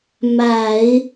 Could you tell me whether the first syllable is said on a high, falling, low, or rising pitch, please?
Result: low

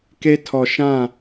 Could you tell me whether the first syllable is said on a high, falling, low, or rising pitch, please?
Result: high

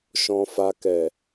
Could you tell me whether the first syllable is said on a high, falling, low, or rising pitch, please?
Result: low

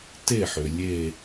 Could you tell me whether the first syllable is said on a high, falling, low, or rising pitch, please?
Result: falling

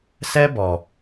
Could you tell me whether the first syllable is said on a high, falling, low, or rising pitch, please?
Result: high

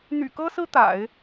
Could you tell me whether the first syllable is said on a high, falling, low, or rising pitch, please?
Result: low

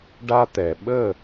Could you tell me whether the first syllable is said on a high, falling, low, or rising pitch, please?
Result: high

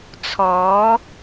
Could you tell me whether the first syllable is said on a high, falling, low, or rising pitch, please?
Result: rising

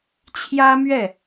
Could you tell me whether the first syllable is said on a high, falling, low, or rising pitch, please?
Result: high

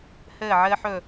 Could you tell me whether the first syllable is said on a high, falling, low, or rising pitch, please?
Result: falling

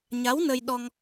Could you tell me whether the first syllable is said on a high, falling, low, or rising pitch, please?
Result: rising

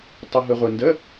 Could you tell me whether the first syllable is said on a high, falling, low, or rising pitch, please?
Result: low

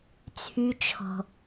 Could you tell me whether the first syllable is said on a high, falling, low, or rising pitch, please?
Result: low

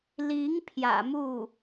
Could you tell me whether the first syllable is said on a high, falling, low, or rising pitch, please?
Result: rising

